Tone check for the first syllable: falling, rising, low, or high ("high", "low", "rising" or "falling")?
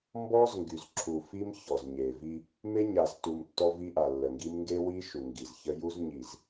high